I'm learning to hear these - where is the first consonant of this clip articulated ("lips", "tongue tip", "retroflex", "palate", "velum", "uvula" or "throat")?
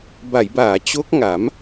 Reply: lips